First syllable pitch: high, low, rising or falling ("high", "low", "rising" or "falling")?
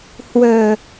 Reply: low